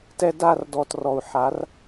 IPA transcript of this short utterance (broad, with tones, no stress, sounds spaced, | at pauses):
t ɛ˧ d a˦˨ r d ɔ˨ t r ɔ˨ u̯ ħ a˨˦ r